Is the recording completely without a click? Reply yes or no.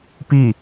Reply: yes